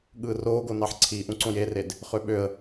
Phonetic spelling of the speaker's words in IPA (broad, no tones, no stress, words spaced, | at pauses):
ɠɯːroːɡo nɑħǀʰiːʔũǀõj ered | χøɓøə̯